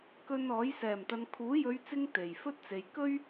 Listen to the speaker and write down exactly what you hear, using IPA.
k ɵ˧ n ɔː˨˥ j s ɛː˨˩ m t̪ ɐ˨ n kʰ uː˨˥ j ɵ˨˧ ɥ t͡s ɪ˧ ŋ t̪ e˨˩ j f ɵ˥ t̚ t͡s e˨ j k ɵ˥ ɥ

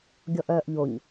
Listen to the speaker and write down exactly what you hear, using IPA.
ɡʲ ɔ ʔ œː ʔ ʎ o ɲ

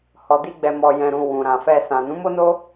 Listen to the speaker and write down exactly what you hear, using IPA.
h ɔ˨ d i˧ ɡ͡b ɛ˨ m ɔ˨ j ɛ̃˨ ɾ ũ˨ w ũ˨ ɾ ã˨ f ɛ˧ s ã˨ n ũ˨˦ m o˦ n o˦

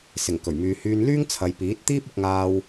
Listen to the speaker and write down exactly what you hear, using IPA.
s ɪ˨˩ ŋ k ɵ˨˩ ɥ m yː˨ h yː˧ n l yː˥ ŋ t͡sʰ ɐ˨ j p iː˨˥ t̚ t̪ iː˥ p̚ ʊ˧ k̚ ŋ aː˧ w

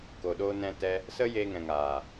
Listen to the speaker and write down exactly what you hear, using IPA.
k o˨ ɗ o˧ n ɛ̃˧ t ɛ˧ | s ə˦ j e˧ ŋ ɛ̃˨ ŋ aː˨

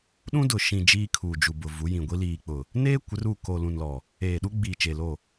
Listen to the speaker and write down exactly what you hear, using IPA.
ɗ ũ˦ d ʊ˨ ʃ ĩ˨ d͡ʒ iː˦ kʰ uː˨ d͡ʒ u˨ b ʊ˨ v u˨˦ j ĩ˨ ɡʷ i˦ l iː˨ k͡p ʊ˨ | n eː˦ kʷ ɪ˨˦ r u˦˨ k oː˨ l ũ˨ n l ɔ˨ | eː˨ ɗ u˦ ɡ͡b iː˨ t͡ʃ e˨ l o˦˨

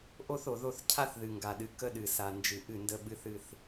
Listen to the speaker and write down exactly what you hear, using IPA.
ʔ o˦ θ o˨ ð o˦ θ cʰ a˦ θ ð ɨ˨ ŋ ɡ a˨ ɗ ɨ˨ k ə˦ ɗ ɨ˨ s a˨ n d͡ʒ ɨ˨ ʔ ɨ˦˨ n d ə˦ ɓ ɨ˦ θ ɨ˦ θ

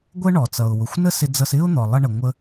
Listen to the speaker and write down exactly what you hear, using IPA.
ɡʷ ə˥ ɳ ɔ˩ t͡s ʌ˩ ʊ̯ w ʊ˩ xʷ n ə˥ s ɪ˧ d͡z ʌ˧ s ɪ˥ ʊ̯ n̪ ɔ˩ lˠ ʌ˧ ɳ ə˩ ŋʷ ə˧

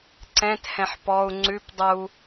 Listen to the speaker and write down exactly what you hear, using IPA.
ǀ ɛ̃ t h ɛ̃ ħ p ɔ u̯ ŋ͡ǀ ʉ p dˤ u

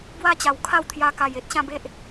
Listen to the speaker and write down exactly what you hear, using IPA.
b w a˦ t͡ɕ a˨˩ w kʰ a˥˧ w t̪ʰ j a˧ k a˨˩ j e˦ t̚ ɕ ã˥˧ b e˦ ʔ

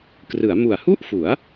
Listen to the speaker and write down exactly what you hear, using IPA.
k r ɯ˩˦ a̯ m u˨˩ a̯ h u˥˩ ʔ f u˩˦ a̯

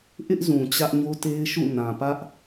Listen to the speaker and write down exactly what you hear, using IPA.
ʔ ɪ˦ ʔ z ũ˨ t͡ɕ ä˦ ʔ ɲ o˦ t e˦ ɪ̯ ʃ ṵ˦˨ n ã˨ p ä˦ ʔ

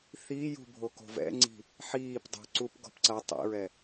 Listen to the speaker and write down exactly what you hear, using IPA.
θ i j ṳ bʱ o k o̤ v ɛ̰ ŋ͡ǀ i̤ | ħ iː p dˤ ṳ ǀ u p ɡ ɔ̤ p ǀ ɐ tˤ ḭ ɹ ɛ

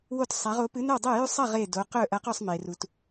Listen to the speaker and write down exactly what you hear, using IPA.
w o˥˩ t sˤ a˨˥ ʁ o˨˥ p ɨ˨˥ n ɵ˥˩ w dˤ e˥˩ j ʉ˥˩ sˤ ɐ˥˩ ʁ e˥˩ d o˨˥ q ɵ˥˩ ʔ ɐ˨˥ q ɵ˥˩ sˤ m e˩ r u˩ t

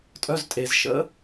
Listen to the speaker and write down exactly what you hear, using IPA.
tʼ œ˩˧˩ z tʼ e˩ z ʃ ə̰˨˦

